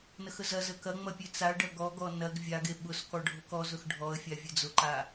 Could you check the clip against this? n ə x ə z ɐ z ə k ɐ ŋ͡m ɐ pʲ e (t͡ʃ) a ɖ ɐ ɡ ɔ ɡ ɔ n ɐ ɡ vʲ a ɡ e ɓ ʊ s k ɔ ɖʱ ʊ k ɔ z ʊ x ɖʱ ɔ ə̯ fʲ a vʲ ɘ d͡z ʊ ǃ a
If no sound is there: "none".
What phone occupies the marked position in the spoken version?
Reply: t͡s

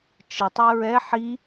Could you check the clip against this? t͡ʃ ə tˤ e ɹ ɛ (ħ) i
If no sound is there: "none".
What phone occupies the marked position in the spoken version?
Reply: ħ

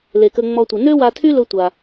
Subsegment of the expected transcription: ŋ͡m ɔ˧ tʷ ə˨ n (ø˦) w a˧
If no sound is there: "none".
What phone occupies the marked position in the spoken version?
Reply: ø˦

